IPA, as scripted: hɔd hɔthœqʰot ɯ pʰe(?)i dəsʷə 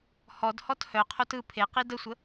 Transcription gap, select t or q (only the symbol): q